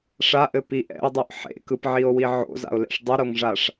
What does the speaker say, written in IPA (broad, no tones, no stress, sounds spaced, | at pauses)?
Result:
ʂ a ʔ ɘ p i ʔ ɛ̰ o̯ dˤ o ʔ ħ ḛ k ɯ p ʕ i o̯ w i ʕ o̰ z a̰ o̯ l ɛ̰ ʂ dˤ ɘ ɾ o ŋ ʐ a ʂ